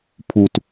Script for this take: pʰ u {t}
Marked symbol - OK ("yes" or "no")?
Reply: yes